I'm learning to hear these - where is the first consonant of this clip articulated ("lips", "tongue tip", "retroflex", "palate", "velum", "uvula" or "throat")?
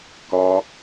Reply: velum